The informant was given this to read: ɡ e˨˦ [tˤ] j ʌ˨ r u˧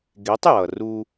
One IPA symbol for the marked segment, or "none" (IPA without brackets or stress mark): tˤ